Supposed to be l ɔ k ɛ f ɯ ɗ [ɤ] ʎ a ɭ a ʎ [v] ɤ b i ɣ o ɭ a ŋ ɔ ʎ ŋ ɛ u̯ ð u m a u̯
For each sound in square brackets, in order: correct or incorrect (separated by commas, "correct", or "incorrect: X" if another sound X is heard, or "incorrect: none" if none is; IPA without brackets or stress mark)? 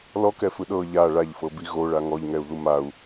correct, incorrect: f